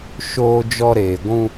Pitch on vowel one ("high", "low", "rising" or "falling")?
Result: high